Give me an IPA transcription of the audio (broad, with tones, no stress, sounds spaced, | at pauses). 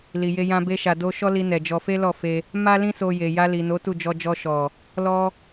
l i˧ j e˦ j ã˦ b e˦ ʃ a˧ d o˦ ʃ ɔ˦ l i˧ n ɛ˨ d͡ʒ ɔ˧ f e˦ l ɔ˦˨ f e˧ | m a˦ l ĩ˦ s o˧ j e˨ j a˧ l i˨ n o˨˦ t u˦˨ d͡ʒ ɔ˧ d͡ʒ ɔ˧ ʃ ɔ˨ | l ɔ˦